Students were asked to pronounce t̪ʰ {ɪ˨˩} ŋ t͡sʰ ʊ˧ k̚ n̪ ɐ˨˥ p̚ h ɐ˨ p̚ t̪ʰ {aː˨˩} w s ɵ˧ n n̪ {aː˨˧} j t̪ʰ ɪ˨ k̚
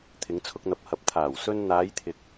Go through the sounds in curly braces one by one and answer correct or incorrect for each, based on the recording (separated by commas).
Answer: incorrect, correct, correct